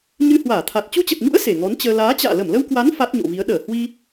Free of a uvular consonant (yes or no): yes